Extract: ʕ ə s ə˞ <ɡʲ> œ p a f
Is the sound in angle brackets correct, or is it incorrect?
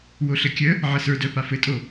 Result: incorrect